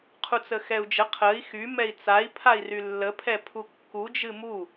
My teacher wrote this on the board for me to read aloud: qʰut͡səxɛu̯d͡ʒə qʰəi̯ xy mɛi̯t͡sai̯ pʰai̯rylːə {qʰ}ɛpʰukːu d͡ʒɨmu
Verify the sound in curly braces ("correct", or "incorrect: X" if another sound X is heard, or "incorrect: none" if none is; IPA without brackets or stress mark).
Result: incorrect: pʰ